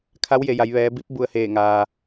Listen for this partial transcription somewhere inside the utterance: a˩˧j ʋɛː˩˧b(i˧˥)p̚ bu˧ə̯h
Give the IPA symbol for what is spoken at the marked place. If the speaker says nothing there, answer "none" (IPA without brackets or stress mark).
i˧˥